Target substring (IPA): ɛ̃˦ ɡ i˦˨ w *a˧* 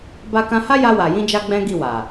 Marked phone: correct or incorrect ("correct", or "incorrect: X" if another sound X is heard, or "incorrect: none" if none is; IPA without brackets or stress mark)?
incorrect: a˨